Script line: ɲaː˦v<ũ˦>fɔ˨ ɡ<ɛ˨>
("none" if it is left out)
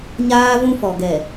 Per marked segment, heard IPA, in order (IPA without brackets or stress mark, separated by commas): ũ˦, ɛ˨